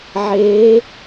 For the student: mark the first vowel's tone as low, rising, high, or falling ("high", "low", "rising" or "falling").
rising